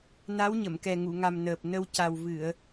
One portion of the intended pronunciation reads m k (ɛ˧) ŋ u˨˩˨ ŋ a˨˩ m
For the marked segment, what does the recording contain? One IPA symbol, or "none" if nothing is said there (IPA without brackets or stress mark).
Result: ɛ˨˩